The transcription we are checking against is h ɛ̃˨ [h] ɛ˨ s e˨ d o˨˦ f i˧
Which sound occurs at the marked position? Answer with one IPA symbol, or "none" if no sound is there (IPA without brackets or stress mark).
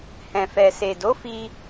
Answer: f